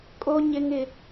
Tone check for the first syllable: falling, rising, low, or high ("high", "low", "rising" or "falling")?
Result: high